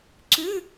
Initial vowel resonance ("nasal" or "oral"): oral